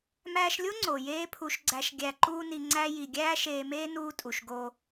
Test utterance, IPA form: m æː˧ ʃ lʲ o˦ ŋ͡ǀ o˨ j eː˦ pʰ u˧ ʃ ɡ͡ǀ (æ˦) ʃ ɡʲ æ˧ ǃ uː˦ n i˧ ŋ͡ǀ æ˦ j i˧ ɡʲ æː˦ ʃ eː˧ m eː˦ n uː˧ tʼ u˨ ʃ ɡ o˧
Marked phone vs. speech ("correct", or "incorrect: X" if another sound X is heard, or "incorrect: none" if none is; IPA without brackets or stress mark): incorrect: æ˧